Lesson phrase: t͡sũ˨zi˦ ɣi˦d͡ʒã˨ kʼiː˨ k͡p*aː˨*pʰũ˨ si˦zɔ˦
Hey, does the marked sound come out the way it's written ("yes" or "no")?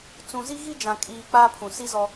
no